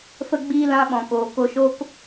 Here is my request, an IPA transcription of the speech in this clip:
fə˧ɡ͡biː˧ lã˧ɓɔ̃˨koː˨ko˧ ʃo˦k

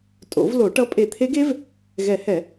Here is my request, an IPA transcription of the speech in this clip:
tʼo̰˨˩˦vlo˨˩˦ʈʌ˧˥ pʼe˨˩˦t̪ʰe˧˥ɡe˧˥v | ɣɛ˨˩˦hɛ˨˩˦

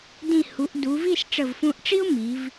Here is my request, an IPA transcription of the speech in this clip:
dĩ˧˩ hu˩˧ʔdu˩˧vi˥˧s ʈ͡ʂə˧˩vfũ˧ʔʈ͡ʂi˥ʊ̯ mi˩˧v

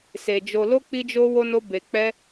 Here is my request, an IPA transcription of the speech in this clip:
se˧ d͡ʒo˧lo˦ k͡pi˦d͡ʒo˦ wo˦no˦ be˧k͡pɛ˦

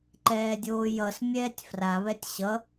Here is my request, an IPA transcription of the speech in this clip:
ǃɛːdʲoːjʌs mʲɛːtʲfra βɛtʲɕʌ

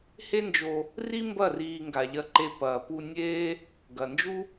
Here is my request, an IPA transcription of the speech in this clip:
he˦nd͡ʒo˧ | ri˦mbɐ˦˨ riː˧ ŋɡa˨ʎɐ˧ǃe˧ pɐː˨pu˧ nʲeː˦ | ɡɐ˨nd͡ʒu˦

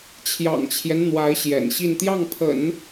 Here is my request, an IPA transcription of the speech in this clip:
t͡ɕʰjɑ̰˨˩ŋt͡ɕʰjɛ˦n n̪wa˧˥ɪ̯ɕjɛ̰˨˩nɕi˥˧n t̪jɑ˥˩ŋpʰə̰˨˩˦n

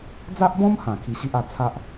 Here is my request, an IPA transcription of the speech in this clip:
d͡za˦ʔbɔ̃˦mhã˨˩ kʰi˧ɕi˦ʔa˧ t͡sʰa˦ʔ

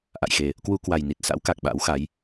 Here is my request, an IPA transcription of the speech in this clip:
ʔa̰˧˨jxe˨˩ | kwu˧kwa˨˩jni˨˩t̚sa̰˧˥w ka˨˩k̚ɓa̰˧˥wxa˨˦j

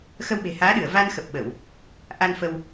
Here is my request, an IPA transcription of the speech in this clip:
xə˧wɓe̤˨˩haː˨˦ɗɨ˧˩ə̯ va˧nxə˨˩p̚ɓə˧˩˨w | ʔa˧nfə˧w

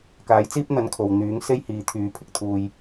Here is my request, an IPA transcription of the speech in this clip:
kaː˨˥jt͡siː˥p̚ n̪ɐ˧nkʰo˨w n̪yː˨˥ŋ se˥jhiː˨˧t̪ʰyː˨˧pʰɪ˧k̚ t̪ʰuː˧j

